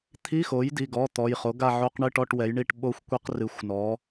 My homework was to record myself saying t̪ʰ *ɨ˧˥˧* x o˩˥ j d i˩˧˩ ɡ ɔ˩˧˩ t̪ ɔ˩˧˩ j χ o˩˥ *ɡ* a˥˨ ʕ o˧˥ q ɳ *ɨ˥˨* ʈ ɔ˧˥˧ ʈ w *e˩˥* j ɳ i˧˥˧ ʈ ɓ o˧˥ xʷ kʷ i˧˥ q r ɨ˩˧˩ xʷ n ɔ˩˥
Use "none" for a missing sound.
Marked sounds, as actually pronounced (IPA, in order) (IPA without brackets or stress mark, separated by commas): i˧˥˧, ɡ, ɨ˥˨, ɛ˩˥